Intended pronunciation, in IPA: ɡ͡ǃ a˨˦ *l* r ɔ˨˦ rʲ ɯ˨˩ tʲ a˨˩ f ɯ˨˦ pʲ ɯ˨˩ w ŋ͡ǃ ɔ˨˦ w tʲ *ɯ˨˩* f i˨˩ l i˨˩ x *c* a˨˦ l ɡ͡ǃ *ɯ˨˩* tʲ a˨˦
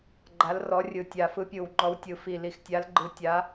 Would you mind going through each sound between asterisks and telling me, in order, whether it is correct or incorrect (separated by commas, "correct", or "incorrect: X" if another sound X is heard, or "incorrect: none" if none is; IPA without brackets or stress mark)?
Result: correct, correct, incorrect: tʲ, incorrect: ɯ˨˦